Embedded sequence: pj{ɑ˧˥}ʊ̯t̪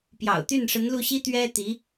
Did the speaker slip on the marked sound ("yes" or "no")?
yes